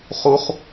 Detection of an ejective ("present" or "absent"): absent